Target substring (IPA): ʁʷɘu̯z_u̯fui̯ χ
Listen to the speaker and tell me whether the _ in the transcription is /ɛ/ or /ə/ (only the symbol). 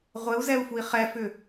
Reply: ɛ